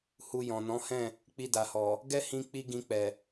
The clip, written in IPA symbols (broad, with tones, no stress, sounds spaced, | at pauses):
h u˧ j ɔ̃˨ n ɔ̃˨˦ h ɛ̃˦˨ | k͡p i˧ d a˨ h ɔ˨ | ɡ ɛ˦ h ĩ˧ k͡p i˧ ɡ ĩ˧ k͡p ɛ˨